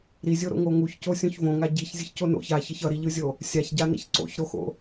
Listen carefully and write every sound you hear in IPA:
ɾ i zʲ o ɾ o̰ ŋ o ŋ u ç c o sʲ õ ç v õ ŋ a ɟ i ç zʲ ɯ ç c o n o̰ ç a ç ʌ ç ʌ ɾ i ʎ ɯ zʲ o | sʲ a ç ɟ a n ḭ ç ǀ o̰ ç ɾ o x o̰

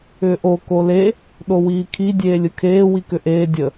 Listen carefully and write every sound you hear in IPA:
ʏː ʔ o k o l e | ɗ o w iː kʰ i dʲ eː lʲ ɯ kʰ eː w i k ʏ ʔ eː dʲ ə

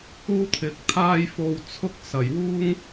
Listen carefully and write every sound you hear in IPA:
uː˥ t̪ʰ ɪ˨˥ k̚ t̪ʰ aː˥ j f o˧ w t͡sʰ ʊ˥ k̚ s ɐ˨˩ j w uː˥ ŋ

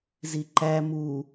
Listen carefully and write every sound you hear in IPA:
z i ǃ æ m u

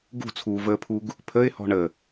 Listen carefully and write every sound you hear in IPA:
ɡ ṳ t͡sʰ uː v əː pʰ u ɡ | pʰ ə ɪ̯ h ɔ̤ ɳ ə

